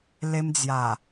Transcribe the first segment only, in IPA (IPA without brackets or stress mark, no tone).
l